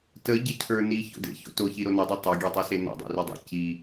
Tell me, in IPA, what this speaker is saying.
t ə ɟ e cʰ ə˞ n i ç o̰ d ḛ ç o̰ t o ç i ɾ o n ə˞ dˤ o tˤ a ɡʲ e tˤ o s e n ɔ̰ dˤ ḛ r i dˤ ḛ c i

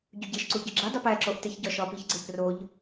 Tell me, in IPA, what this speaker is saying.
ɟ u ɟ e ʃ ǀ u ɟ i ɡ͡ǁ i dˤ i p æ ǁ o ʔ t e ç ɟ ɒ ʃ ɒ p i ç ɡ͡ǀ e p r o ʎ

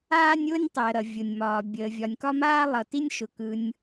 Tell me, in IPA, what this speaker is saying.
aː˥ nʲ ʊː˥ nʲ tˤ əː˩ ɾ ʌ˩ vʲ ʊ˩ nʲ m ɒː˩ bʲ əː˩ vʲ ɒ˩ nʲ k ɒ˥ m aː˥ lˠ ʌ˩ t i˥ nʲ ʃ ʊ˩ k ɯ˩ nʲ

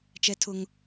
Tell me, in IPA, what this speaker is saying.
t͡ʃ ɛ˦ tʰ ʊ˦ ŋ

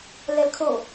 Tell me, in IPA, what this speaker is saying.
l ɛ l kʰ o

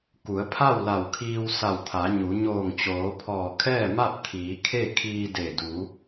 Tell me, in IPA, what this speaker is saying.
k u˩˧ ə̯ pʰ a˥˨ w l a˧˩ w kʰ iː˧ w s a˧˩ w t̪ʰ a˩˧ ɲ u˩˧ ɲ oː˧˩ ŋ t͡ɕ oː˩˧ pʰ ɔː˧˩ kʰ ɛː˥˨ m a˥˨ p̚ t̪ʰ iː˩˧ kʰ e˥˨ kʰ iː˧ d e˧˩ d u˩˧

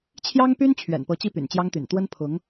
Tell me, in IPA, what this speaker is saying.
t͡ɕʰ j ɑ˥ ŋ p y˥ n t͡ɕʰ ɥ ɛ̰˨˩ n p ɤ˧˥ t͡ɕ i˥˩ p y̰˨˩ n t͡ɕ j ɑ˥ ŋ t̪ y̰˨˩ n t̪ w ə˥ n pʰ ʊ˧˥ ŋ

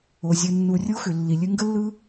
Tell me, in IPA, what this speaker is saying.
o˨ zʲ ɯ˨ nː u˨ rʲ o˦ x ʏ˨ lː i˨ lʲ ɨ˧ ŋ ɡ ə˦ lː ɯ˦

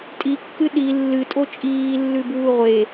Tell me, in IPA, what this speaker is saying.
tʼ i kː ɨ ɗ i lː ɨ tʼ o t͡ʃʼ iː lː ʉ b uː ʁʷ e

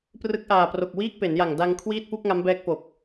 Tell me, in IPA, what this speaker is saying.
p r ɯ˦˥ k̚ ʔ aː˨˩ p r o˨˩ k̚ w iː˥˩ k̚ p e˩˦ n j a˨˩ ŋ d a˧ ŋ kʰ w iː˥˩ t̚ p u˥˩ k̚ ŋ a˦˥ m b ɛː˦˥ k̚ p o˨˩ k̚

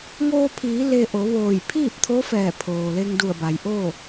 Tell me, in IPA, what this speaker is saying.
ŋ oː˧ pʰ iː˩˧ l e˧ ʔ o˩˧ ʋ oː˧˩ j pʰ iː˥˨ p̚ t̪ʰ o˧˥ f ɛː˧˩ pʰ oː˩ l e˧ ŋ d u˧˩ ə̯ b a˩ j ʔ oː˥˨

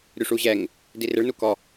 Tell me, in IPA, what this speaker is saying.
ɾʲ u ʂ u ʑ ɛ ŋ | d i r ɪ ɭ n u k ɔ

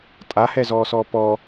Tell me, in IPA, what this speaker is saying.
tʼ a h ɛ z ɔː s ɔː p ɔ

